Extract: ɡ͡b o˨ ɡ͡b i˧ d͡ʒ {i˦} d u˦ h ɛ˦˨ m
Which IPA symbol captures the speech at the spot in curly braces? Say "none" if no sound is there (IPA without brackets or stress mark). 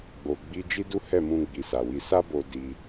i˦